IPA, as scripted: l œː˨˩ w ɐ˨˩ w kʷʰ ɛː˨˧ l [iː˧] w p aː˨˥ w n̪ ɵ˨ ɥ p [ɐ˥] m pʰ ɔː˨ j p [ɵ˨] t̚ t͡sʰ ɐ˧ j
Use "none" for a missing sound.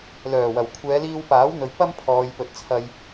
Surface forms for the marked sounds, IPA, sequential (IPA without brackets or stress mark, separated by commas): iː˧, ɐ˥, ɵ˨˥